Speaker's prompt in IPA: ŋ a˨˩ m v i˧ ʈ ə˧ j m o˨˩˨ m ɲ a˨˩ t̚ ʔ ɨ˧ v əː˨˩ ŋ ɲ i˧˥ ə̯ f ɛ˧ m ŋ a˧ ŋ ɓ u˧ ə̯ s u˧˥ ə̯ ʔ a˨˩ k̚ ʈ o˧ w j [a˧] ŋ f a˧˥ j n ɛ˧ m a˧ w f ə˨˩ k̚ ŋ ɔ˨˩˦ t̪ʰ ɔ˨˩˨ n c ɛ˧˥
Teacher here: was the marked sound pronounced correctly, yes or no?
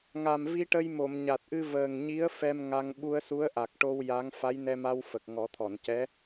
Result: no